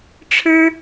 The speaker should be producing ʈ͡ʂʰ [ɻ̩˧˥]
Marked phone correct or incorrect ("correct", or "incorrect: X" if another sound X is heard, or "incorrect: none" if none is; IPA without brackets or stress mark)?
incorrect: ɻ̩˥